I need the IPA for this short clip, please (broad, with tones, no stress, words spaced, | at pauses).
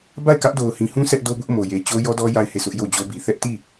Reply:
ba˦˨ɪ̯kä˦ʔ do˨ʊ̯hĩ˨hũ˦ sʰɛ˦ʔdo˦bʊ˦ʔ mo˨je˨t͡ɕo˦ jɔ˦dɔ˦ ja˦˨ɪ̯he˦˨sʊ˦ʔ jo˦˨d͡ʑo˦bi˨ θɛ˦ʔti˦˨